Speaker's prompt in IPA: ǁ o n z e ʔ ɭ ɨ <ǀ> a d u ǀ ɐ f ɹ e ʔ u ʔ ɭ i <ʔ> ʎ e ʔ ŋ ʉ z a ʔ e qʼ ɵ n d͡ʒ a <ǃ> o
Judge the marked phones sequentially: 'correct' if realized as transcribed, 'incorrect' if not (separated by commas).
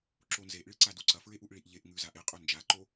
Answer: correct, correct, correct